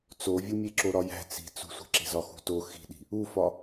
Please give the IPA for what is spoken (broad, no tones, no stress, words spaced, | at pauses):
t͡sovʲumʲe ǁoɾɒjæ̤ t͡si̤t͡sṳsʷe̤ ǁe̤zɒxṳto xi̤ɗi̤ | ufɒ